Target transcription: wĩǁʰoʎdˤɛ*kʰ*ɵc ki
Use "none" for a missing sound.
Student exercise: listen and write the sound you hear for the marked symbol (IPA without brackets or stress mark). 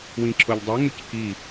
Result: ŋ